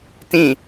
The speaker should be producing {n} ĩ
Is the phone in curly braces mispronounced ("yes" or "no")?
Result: yes